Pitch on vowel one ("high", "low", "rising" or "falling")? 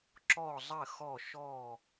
falling